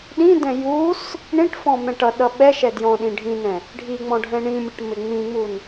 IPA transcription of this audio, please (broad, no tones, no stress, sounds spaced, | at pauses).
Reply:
ɗ ĩ d ɛ̃ j u s | ɳ ĩ ʈ f ɔ̃ m ɛ̃ ʈ ʌ ɗ ʌ ɓ ɛ ʃ ɛ d j ɔ̃ ɗ ĩ ɖʱ ĩ n ɛ̃ | ɖʱ i ŋ͡m ɔ̃ ɖʱ ɛ̃ ɳ ĩ mʲ ʌ ʈ m ɪ ŋ͡m ĩ ŋ͡m u n